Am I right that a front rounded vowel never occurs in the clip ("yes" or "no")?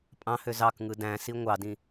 no